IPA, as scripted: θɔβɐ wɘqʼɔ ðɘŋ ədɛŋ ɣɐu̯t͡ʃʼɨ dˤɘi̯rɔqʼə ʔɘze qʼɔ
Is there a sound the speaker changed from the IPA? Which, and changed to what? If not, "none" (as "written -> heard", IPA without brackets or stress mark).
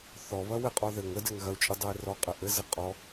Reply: none